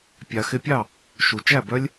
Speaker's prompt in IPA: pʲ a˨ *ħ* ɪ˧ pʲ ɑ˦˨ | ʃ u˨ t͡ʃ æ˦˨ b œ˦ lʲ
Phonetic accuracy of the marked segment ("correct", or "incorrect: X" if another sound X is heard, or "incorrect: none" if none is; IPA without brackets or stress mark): incorrect: x